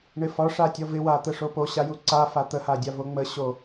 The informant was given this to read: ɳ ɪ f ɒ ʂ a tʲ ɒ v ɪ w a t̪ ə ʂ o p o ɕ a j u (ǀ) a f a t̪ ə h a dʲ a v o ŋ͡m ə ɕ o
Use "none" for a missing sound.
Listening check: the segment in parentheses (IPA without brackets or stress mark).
ǀ